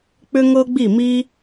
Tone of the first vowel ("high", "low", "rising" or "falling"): high